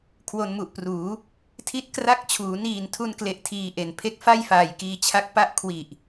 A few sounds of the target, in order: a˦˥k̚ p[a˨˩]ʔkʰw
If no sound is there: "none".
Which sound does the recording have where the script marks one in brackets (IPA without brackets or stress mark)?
a˥˩